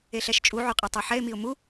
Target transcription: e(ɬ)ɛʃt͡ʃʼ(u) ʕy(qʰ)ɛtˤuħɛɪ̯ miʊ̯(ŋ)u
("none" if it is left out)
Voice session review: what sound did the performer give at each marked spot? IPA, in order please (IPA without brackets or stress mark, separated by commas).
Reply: ɬ, u, qʼ, m